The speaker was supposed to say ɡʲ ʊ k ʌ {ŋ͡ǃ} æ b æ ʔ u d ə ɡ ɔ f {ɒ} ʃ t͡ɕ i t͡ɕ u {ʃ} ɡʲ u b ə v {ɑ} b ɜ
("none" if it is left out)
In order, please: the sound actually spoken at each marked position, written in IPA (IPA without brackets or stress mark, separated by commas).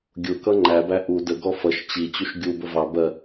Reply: ŋ͡ǃ, ʌ, ʃ, ɑ